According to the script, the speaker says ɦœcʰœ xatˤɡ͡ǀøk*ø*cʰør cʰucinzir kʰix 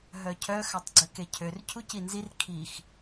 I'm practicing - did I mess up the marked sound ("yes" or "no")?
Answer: yes